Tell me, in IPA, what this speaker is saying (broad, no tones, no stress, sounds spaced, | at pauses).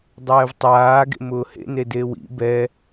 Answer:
dˤ ɛː v tˤ aː ɡ ḛ m ʊː h ḛ n e d e w ḭ b ɛ